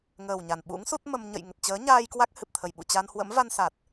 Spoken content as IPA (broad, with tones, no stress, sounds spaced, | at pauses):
ŋ əː˨˩ w ɲ a˧˩ n ɓ ṵ˧˥ ŋ s u˦˥ t̚ m ə˧ m ɲ ə̰˧˨ j ŋ ə˨˩ t̚ t͡ɕ əː˨˦ ɲ aː˧ j k w a˦˥ k̚ h ɨ˨˩ p̚ t̪ʰ ə˨˩ j ɓ ṵ˧˨ t͡ɕ a˧ n h w ə̰˧˥ m v a˧ n s a˨˩ t̚